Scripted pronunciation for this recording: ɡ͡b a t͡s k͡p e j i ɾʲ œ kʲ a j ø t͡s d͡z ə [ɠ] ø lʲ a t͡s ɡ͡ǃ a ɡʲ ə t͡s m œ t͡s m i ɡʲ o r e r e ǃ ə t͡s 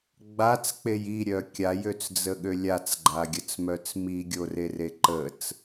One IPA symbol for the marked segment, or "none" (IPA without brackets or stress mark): ɠ